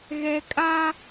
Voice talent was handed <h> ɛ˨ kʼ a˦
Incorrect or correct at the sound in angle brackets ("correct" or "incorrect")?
incorrect